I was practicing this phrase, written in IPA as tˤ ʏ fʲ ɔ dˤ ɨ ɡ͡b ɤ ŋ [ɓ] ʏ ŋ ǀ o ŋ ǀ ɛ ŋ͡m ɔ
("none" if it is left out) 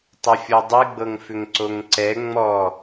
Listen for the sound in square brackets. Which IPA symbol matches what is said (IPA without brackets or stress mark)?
f